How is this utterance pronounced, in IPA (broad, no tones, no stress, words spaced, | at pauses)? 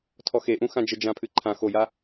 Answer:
tʰɔxeʔũ xãd͡ʒɘ d͡ʒãpʰɨǃʰã xoja